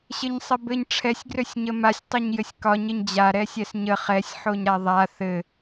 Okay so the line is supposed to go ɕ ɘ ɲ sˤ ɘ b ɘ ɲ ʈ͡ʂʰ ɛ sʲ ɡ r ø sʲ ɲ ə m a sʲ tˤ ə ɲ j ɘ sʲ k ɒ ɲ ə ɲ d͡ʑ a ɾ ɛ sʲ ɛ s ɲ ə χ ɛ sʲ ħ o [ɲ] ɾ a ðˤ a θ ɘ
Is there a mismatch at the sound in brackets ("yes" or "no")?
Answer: no